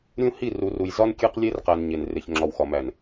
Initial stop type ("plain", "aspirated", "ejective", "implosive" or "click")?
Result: plain